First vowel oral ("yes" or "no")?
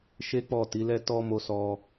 yes